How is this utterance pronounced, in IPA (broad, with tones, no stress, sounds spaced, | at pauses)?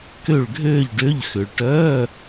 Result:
k ø˥˧ ɭ ɡʱ øː˥˧ ʎ ɖ ø˧˥˧ ʎ x ʏ˨ ɭ ʈ œː˧˥˧